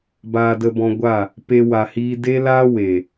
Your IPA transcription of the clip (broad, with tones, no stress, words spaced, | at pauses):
baː˧də˧bɔ̃˧ ɡʷa˦˨ | pe˦wa˧hiː˦ de˦laː˦we˨